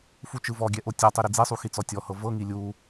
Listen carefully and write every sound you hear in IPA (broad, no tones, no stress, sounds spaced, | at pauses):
f u t͡ʃ ɯ v ɔ ɡʲ ɛ ʔ o tʲ ɔ tˤ i ɾ i d͡z e sˤ u x i t͡s ɔ tʲ ɔ h ɤ v ɤ ŋ i lʲ u